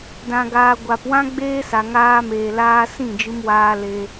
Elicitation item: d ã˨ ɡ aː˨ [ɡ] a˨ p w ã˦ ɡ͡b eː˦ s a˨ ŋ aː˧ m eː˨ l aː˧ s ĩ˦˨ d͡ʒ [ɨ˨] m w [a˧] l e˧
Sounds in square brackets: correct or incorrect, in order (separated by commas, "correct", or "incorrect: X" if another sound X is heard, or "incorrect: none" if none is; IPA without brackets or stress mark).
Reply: incorrect: ɡʷ, incorrect: ɨ˧, incorrect: aː˧